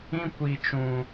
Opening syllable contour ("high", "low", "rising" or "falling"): high